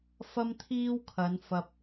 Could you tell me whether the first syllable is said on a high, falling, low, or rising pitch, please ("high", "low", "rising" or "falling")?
high